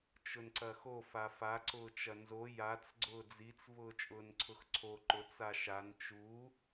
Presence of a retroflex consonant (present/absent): absent